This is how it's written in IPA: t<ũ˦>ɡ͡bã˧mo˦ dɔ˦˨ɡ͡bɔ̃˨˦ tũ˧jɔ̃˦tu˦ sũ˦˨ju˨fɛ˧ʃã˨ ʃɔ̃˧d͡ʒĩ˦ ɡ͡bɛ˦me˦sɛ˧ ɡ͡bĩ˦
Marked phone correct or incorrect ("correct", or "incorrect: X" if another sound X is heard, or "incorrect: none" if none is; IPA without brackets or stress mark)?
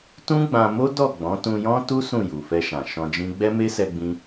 correct